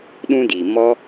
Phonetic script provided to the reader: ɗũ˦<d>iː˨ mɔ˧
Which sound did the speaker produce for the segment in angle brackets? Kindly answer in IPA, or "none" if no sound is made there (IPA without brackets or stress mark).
d